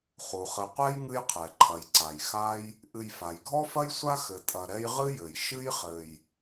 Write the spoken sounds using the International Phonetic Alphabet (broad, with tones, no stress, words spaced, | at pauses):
χu˩χɘ˨qʷɛ˥j ŋɨ˦jqʰɛ˩ǃʰɐ˩jǀa˩j xa˥j | ʔɨ˨jfa˩jɡʱɔ˥fɐ˥j sʷa˥xɘ˨ tʼɐ˨ɾɛ˦j ʁɨ˥jɘ˩j ʃɨ˥jχɘ˨j